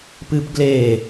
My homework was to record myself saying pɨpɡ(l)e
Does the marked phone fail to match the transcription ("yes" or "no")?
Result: no